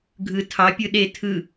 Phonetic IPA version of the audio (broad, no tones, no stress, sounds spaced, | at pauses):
ɡʱ ɯ tʰ ɑ pʲ ɯ ɗ e tʰ ɯ